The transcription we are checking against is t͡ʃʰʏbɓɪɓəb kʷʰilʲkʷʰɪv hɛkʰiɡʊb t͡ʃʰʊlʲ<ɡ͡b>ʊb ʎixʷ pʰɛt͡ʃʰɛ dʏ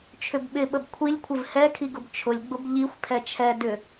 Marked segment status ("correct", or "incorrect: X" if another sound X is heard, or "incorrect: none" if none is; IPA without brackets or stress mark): correct